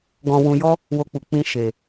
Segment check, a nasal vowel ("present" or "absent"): present